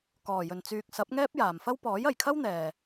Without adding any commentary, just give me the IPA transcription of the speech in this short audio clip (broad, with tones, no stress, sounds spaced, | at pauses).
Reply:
k ɔː˨˩ j ɵ˨˩ n t͡s yː˨ k̚ s ɐ˨˥ p̚ ŋ ɛː˥ p̚ j aː˨˩ m f ɐ˥ w p ɔː˨˥ j ɐ˨˩ j kʰ ɐ˥ w n̪ ɛː˨˩